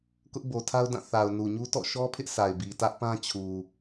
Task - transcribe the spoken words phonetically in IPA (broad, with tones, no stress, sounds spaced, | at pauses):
k ʊ˦ ʔ b o˨ tʰ a˦ ʊ̯ d ã˦˨ θ a˨ ʊ̯ n u˨ ɲ u˦ t ɔ̰˦˨ ʃ ɔ˦ pʰ ɪ˦ ʔ s a˨ ɪ̯ b i˨ t ä˦ ʔ p ã˦ t͡ɕʰ u˨